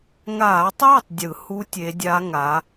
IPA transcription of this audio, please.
ŋ aː˧˩˧ tˤ j ɯ˥˩ tˤ dʲ ɯ˧˩˧ h u˦˥ tʲ e˨˥ dʲ a˦˥ ŋ a˨˥

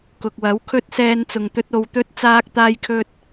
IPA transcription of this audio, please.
k ʊ˨ k̚ w ɐ˨˥ w kʰ ɵ˥ t̚ s ɛː˥ n t͡s ʊ˧ ŋ t̪ ɵ˥ t̚ o˧ w t̪ ɵ˥ t̚ t͡s aː˥ k̚ t̪ aː˥ j kʰ ɵ˥ t̚

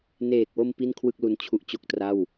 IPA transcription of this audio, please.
n eː˨˩ k̚ w o˧ m p i˥˩ n kʰ w ɯ˥˩ k̚ l u˧ n t͡ɕʰ u˦˥ ʔ t͡ɕ o˦˥ k̚ t r a˥˩ w

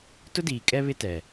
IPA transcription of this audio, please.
t ʊ˦ d iː˨ kʼ ɛ˦ β ɪ˦ t ɛ˨

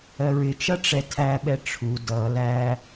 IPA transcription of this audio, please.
ɜ ɹ ɪ t͡ʃ ʌ ʈ͡ʂ ɛ tʰ æ ɓ ɛ ʈ͡ʂʰ u d ʌ l æ

